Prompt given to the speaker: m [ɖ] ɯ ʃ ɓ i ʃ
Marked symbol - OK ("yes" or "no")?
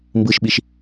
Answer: no